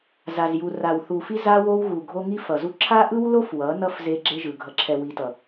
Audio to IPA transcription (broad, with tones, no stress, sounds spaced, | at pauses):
z a˨ z j u˨ r a˨ w θ u˨ f i˦ z a˦ w o˦ w ɣ u˨ ɡʱ o˦ ŋ i˦ f ʌ˨ z u˦ ǁʰ a˦ ʔ ɯ˦ w l o˦ f w ʌ˨˦ n ʌ˦ f z e˦ ɡ͡ǁ e˦ ʒ ɯ˨ ɡʱ ʌ˨ ǁʰ ɛ˨ w i˨ t ʌ˨